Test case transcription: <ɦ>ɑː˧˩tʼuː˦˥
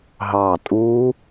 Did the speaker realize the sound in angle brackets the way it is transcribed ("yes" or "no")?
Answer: yes